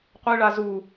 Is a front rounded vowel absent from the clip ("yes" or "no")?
yes